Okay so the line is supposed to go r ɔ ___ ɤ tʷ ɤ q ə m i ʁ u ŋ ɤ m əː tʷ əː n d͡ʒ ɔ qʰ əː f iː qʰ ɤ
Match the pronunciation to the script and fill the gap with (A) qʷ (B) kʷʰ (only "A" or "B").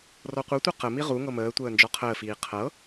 A